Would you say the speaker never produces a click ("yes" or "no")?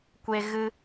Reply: yes